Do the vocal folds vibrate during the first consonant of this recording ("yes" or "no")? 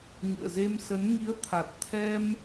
yes